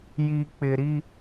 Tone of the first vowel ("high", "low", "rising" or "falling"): low